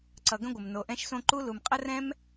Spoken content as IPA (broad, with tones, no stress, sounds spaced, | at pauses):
ǀ ʌ˨ ɡ ə̃˥ ɡʷ ə˩ m n o˨ ʔ ɛ̃˦ ʃ s õ˦ ǃ u˥ l u˨ m qʼ ə˥ r ɛ̃˥ m